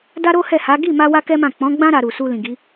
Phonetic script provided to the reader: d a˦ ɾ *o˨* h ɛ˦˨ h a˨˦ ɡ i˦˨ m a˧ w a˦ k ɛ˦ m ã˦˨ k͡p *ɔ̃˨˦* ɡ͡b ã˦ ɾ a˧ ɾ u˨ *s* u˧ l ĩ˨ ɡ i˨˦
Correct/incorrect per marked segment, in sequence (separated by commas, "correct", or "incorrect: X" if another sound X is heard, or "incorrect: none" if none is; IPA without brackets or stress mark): incorrect: o˦, correct, correct